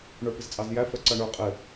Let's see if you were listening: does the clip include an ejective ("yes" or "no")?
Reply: yes